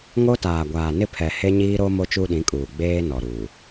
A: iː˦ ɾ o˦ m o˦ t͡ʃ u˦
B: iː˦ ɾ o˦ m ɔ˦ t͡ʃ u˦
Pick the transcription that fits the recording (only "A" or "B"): A